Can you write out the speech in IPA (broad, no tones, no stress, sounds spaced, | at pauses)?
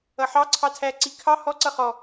ʌ ħ ɑ ǀʰ ɑ tʰ æ ǀ i kʰ ɑ h ɔ ǀ ʌ χ ɔ